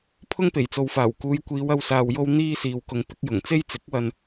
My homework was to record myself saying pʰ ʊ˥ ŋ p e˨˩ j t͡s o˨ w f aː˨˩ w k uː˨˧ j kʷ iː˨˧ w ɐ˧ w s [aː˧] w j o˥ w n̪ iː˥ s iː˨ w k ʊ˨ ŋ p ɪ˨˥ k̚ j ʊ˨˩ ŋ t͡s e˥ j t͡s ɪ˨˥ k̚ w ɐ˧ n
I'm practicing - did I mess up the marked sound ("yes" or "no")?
no